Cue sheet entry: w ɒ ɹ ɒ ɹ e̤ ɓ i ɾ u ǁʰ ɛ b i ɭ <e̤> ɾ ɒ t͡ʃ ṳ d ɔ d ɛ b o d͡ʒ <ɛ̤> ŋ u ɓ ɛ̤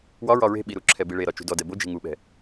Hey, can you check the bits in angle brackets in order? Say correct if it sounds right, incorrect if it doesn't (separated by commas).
incorrect, incorrect